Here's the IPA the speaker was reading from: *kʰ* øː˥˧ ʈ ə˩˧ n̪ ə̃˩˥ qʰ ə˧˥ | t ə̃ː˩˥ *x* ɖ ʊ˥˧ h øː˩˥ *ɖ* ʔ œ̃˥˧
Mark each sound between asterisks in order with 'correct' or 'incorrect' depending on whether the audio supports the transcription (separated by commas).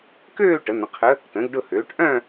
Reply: incorrect, incorrect, incorrect